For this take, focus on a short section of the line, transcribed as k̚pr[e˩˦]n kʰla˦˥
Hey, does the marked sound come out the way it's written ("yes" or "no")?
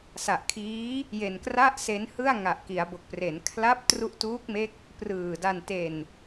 yes